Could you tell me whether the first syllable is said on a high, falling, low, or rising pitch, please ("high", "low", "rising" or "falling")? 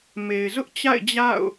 low